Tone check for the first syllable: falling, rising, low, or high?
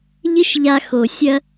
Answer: high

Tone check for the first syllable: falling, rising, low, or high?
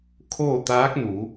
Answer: falling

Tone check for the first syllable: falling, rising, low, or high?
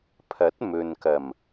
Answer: rising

